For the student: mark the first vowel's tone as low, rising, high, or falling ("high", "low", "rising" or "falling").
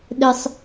high